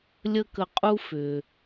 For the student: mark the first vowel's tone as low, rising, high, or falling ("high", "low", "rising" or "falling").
high